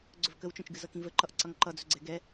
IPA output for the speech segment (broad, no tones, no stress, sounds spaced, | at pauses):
ɡ͡ǀ ɵ v k ə w t͡ʃ œ̃ t͡ʃ ɡ ɨ z ʌ k ĩ v ə ǃ ʌ ʔ ǀ ʌ ŋ ǃ ʌ d͡z ɵ ɡ͡ǀ ɛ ɡ ɛ